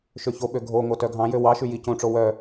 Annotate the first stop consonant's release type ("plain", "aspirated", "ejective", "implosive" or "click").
implosive